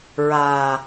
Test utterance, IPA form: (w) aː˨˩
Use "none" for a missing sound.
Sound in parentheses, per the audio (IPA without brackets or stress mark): ɹ